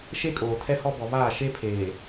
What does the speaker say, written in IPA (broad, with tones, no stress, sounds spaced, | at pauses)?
ʃ e˦ kʼ oː˨ tʰ ɛ˦ h ɔ˦ b ɔ˨ β aː˦˨ ʃ e˦ pʰ eː˨